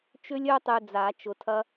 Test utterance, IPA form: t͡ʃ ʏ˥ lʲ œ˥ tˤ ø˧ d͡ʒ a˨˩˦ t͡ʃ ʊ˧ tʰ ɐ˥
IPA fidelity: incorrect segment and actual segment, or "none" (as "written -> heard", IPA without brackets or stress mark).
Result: d͡ʒ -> d͡z